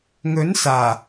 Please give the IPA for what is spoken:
ŋɵ˨˥n saː˨˩

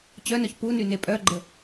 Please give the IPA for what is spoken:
t͡ɕœnœç punyne pʼœɡ͡ǃə

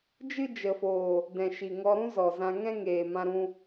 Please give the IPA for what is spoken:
d͡ʒɨ˦d͡ʒə˨foː˨ | dɛ̃˨ʃi˨ŋɔ˧ ɾũ˦zɔ˨zã˧ ŋɛ̃˦ŋeː˨ mã˧ɾũ˧

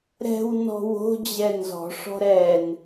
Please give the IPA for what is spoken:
ɾɛ̤w nɔ̤wo̤ d͡ʑɛnzɔ̤ ʂɔ̤ɾɛn

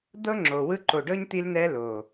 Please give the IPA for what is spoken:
d̪ɤ˦ ŋ͡ǁo˨wɯ˦ ǃo˨ɖɤ˦ɲ t̪i˦lnɛː˦loː˨

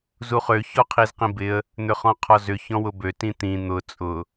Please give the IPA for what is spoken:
zuχø çɔqʰizqĩbɪə̯ | n̪ʏχɔ̃qʰɔzʏ çɔ̃wʊbø tĩt̪ĩ n̪ʊ t͡sʼʊ

